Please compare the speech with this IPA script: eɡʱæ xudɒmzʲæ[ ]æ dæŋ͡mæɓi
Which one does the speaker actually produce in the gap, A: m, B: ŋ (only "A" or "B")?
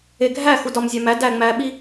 A